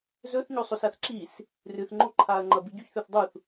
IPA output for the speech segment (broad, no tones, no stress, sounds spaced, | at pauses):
z ɵ θ ɲ o sˤ o s a θ ǁ i s | r ɨ θ ŋ͡ǃ o ǃʰ a ɐ̯ ŋ͡ǃ ɐ b i ɟ ʉ ç θ ɵ θ dˤ u θ